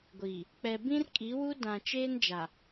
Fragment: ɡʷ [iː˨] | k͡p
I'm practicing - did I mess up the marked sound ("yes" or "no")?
no